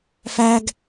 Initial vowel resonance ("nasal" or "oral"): oral